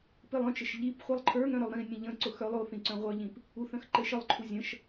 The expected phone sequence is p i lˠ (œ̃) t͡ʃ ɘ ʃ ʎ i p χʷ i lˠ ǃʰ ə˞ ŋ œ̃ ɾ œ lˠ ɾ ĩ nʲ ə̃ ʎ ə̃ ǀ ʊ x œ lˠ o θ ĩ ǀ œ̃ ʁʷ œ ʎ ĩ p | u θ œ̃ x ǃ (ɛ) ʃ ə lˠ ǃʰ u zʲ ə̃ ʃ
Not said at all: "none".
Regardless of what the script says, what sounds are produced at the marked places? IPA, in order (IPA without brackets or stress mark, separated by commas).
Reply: œ̃, ɘ